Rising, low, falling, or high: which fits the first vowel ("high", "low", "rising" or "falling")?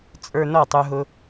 low